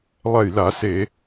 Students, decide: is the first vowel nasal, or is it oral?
oral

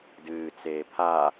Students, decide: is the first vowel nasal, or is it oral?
oral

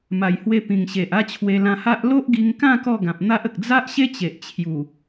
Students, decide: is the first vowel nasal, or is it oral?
oral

